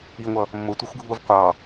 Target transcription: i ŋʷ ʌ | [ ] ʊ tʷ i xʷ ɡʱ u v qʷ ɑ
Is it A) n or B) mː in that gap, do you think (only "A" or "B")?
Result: B